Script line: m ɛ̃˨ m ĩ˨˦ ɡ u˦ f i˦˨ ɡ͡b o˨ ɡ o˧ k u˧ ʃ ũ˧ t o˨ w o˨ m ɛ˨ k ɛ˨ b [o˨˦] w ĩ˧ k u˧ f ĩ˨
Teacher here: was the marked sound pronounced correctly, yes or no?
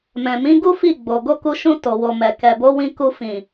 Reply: yes